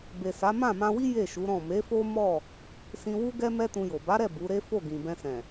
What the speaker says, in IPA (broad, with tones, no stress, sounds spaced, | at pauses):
b e˨ s a˨˦ m ã˦˨ m ã˧ w i˦ j e˦˨ ʃ u˨˦ ɾ ɔ̃˦˨ m e˨˦ f o˦ m ɔ˦˨ | s ĩ˧ w u˦ ɡ ɛ˦ m ɛ˦ t ũ˧ j o˨ b a˨˦ ɾ ɛ˦˨ b u˨˦ ɾ e˦ f o˦˨ ɡ ĩ˨ b ɛ̃˧ s ɛ̃˨